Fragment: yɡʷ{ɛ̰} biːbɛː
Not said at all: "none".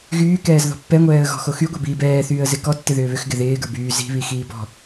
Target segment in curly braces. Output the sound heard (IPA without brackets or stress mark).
ɛ